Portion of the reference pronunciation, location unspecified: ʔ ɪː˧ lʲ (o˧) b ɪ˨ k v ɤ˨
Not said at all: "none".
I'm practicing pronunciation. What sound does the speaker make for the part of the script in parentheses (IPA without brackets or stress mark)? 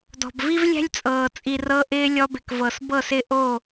ɔ˧